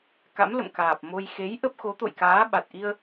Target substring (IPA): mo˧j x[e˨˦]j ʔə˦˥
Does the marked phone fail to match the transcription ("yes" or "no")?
no